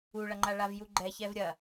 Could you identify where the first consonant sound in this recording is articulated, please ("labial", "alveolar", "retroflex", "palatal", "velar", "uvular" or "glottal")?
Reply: retroflex